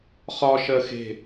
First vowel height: low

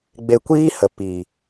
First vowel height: mid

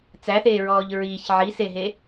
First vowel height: low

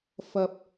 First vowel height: low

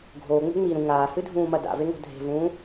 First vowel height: mid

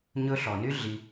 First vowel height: mid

